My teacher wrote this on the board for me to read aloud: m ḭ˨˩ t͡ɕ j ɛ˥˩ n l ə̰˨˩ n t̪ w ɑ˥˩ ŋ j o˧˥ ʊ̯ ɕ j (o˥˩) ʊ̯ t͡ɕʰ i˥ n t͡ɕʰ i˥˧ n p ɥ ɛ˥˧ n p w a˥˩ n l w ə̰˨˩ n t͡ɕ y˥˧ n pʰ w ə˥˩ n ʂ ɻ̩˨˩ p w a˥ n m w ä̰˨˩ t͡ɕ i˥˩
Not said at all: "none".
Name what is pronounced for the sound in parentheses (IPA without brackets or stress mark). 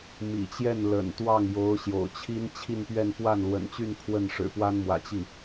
o̰˨˩